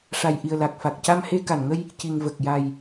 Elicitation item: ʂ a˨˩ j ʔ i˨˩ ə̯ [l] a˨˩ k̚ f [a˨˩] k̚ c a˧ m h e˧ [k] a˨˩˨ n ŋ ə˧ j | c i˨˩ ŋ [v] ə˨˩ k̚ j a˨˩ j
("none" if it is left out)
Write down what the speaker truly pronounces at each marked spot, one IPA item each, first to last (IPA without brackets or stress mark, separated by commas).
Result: l, a˨˩, k, v